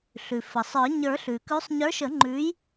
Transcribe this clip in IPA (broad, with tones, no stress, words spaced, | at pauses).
ɬʉ˩fə˩sˤə˞˨˩˦ ɲə˞˨˩˦ɬʉ˩kʉ˨˦sˤ ɲə˞˨˦ʃə˨˩˦ŋ͡ǃʉ˨˦j